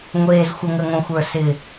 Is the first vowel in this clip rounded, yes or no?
no